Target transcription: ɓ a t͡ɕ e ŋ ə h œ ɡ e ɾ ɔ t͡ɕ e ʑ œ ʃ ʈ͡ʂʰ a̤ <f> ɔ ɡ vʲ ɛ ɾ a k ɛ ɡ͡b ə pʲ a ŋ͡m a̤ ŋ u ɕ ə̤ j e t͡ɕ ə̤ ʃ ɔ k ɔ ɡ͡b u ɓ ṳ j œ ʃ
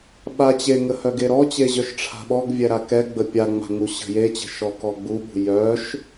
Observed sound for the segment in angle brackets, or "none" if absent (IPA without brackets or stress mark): ɓ